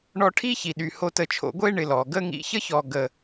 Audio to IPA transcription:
ɳ ɔ˧ ʈʰ i˥ ç i˩ ɗ y˩ h o˧ t ə˧ t͡ʃʰ o̰˧ ɡʷ e˥ ɳ ɪ˧ l ɔ˩ ɡ ə˥ ŋ ḭ˧ ç ə˥ ç ɔ˧ ɡ ə˧

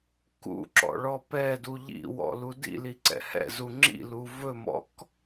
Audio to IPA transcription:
k ṵ ǁ ɔ̰ ɭ ɔ p ɛ d u ʎ ḭ w ɔ̰ l u d ḭ l i ǀ ɛ̰ h ɛ̰ z u ŋ͡ǁ ḭ l u v ɵ m ɔ̰ k

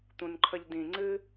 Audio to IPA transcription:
t̪ ũ n ǃʰ ə ʎ d ĩ ŋ͡ǀ ɨ

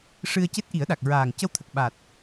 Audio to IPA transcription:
ʂ ɨ˧ ə̯ c e˦˥ t̚ ʔ i˨˩˦ ə̯ ɗ a˨˩ k̚ ɹ aː˨˩ ŋ c ə˧ w t̪ʰ ə˨˩ k̚ ɓ a˨˩ t̚

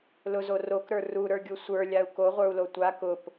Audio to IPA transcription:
l ʊ z o r o k ɾ ə˞ r u ɾ ə˞ ɡʲ u sʷ ə˞ lʲ a u̯ k o ʁʷ ə˞ u̯ l o tʷ a k ʊ p

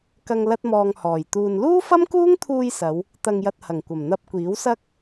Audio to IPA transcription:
k ɐ˧ ŋ l ɐ˥ t̚ m ɔː˧ ŋ h ɔː˨˩ j t̪ uː˧ n l uː˥ f ɐ˥ m k uː˥ ŋ t̪ʰ uː˧ j s ɐ˨˧ w | t̪ ɐ˧ ŋ j ɐ˧ t̚ h ɐ˨˩ ŋ kʷ ɐ˨˩ m n̪ ɐ˧ p̚ kʷ iː˨˥ w s ɐ˥ k̚

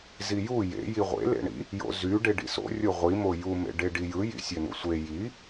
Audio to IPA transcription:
z i j u j ḛ j i ʁʷ ḛ l ḛ ɳ ḭ | j o̰ z y ɖ e ɖ ḭ s o̰ rʲ o ʁʷ i m o j u m ḛ ɖ e ɖ i j ɯ j ḭ sʲ ø n ṵ sʷ e j i

